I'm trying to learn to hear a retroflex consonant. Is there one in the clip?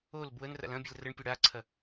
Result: yes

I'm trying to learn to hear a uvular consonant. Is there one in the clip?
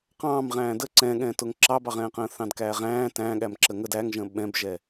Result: yes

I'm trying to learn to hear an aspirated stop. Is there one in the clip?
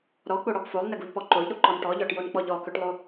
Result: no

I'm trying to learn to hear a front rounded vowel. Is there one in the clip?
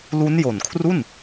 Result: no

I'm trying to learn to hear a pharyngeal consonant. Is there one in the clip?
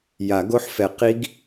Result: yes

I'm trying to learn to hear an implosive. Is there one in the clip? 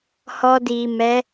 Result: no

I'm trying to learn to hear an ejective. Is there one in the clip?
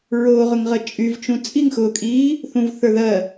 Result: yes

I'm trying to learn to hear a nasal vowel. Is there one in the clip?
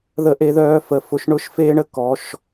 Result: no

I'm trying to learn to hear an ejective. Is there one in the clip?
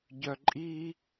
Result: yes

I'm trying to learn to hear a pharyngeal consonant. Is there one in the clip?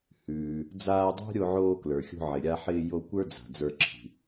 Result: yes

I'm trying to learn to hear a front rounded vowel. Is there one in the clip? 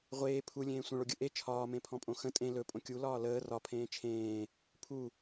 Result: no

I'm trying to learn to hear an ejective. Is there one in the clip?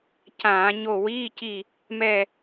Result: no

